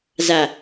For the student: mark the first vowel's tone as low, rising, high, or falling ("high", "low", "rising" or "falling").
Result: low